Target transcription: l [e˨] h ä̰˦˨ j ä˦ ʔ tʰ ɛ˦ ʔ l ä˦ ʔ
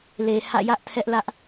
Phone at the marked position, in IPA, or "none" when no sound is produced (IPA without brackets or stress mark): e˨